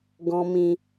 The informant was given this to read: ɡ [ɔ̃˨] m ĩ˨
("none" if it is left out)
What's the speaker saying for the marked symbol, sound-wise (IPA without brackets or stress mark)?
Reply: ɔ̃˨